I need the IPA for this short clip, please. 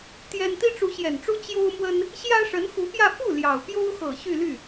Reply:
t̪ j ɛ˥ n t̪ i˥ ʈ͡ʂ u˧˥ ɕ j ɛ˨˩ n ʈ͡ʂ u˥ t͡ɕ j o˥ ʊ̯ m w ə˥ n | ɕ j ä˥ ʂ ə˧˥ n x u˧˥ p j ä˥˧ f u˥˩ l j ɑ˨˩ ʊ̯ p j o˥ ʊ̯ x ɤ˨˩ ɕ y˥˧ l y˥˩

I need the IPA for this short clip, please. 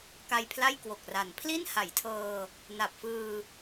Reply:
k a˧ j pʰ l a˥˩ j k w o˨˩ k̚ r a˩˦ n pʰ l i˥˩ n h a˩˦ j tʰ ɤː˧ | n a˨˩ p̚ f ɯː˧

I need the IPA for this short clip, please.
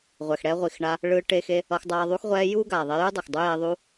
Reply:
ʁʷ ɛ˨ x ɽ ɛ˧ ʁʷ i˨ x ɳ a˧ | ɭ ɯː˧ ʈ e˧ x e˧ | ʌ˧ x dˤ aː˧ ðˤ u˧ x ʁʷ ɛː˧ j uː˦ ɡ aː˨ ðˤ e˧ j u˦ dˤ ʌ˨ x dˤ u˦ j e˧ ðˤ uː˧

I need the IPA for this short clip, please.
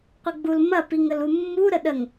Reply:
qʷ ɘ ɡ͡b u l m ɐ p i ŋ ə l u mː u ɾ ə ɗ ə ŋ

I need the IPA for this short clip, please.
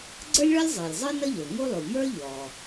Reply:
ɡ͡ǀ ə˞˥ lʲ ɭ ɔ˥ lʲ zˤ ə˞˩ lʲ zˤ ə˞˥ n ʌ˥ ʎ ə˞˩ ŋ u˥ lˠ u˩ m ə˞˥ ʎ ɔ˩

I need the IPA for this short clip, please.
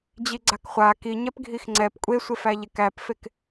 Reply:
d͡ʑ i ɡ͡ǀ a k χʷ a k i ɲ ɛ p ɡʱ i x ŋ͡ǀ ɛ p kʷʼ e sʷ e f æ ʎ e k æ p f e k

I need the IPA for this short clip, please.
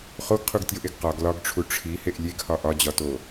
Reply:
χ o ɡ qʰ u ɡ tʲ o ʔ e ɡ q ɒ ɡ l ɒ ɡ ʈ͡ʂʰ u ʈ͡ʂʰ i h e ʔ lʲ e ɡ h ɒ ʔ ɒ d͡ʑ ɒ t o

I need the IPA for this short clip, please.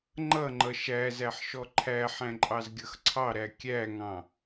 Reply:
ŋ͡ǃ ʌ ŋ͡ǃ ʌ ʃ æ z æ ħ ʃ ɔ ǃʰ æ ħ æ̃ ǃʼ ɑ z ɡʲ ʌ x ǀʰ ɑ ɾ æ kʲ æ ŋ ɑ̃

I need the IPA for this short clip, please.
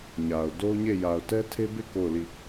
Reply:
ɲ a˨ ʊ̯ d o˦ ʊ̯ ɲ e˦˨ j a˨ ʊ̯ t ɛ˦ tʰ e˦ b e˦˨ k o˦˨ ʊ̯ l i˦˨

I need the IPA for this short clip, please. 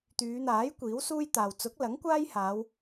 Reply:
t̪ yː˨˧ n̪ aː˨˥ j kʷ iː˨˥ w s uː˥ j t̪ aː˨ w t͡s ʊ˨˥ k̚ l ɐ˨˥ ŋ kʷ aː˥ j h aː˨˧ w

